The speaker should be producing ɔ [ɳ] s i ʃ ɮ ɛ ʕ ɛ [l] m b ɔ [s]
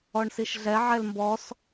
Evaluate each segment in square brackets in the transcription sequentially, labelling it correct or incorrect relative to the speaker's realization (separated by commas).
correct, correct, correct